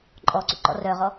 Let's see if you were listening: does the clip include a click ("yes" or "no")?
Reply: yes